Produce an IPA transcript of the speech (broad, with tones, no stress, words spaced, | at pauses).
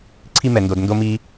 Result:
ǀʰi˦mɛ˧ndo˧d ndo˦miː˦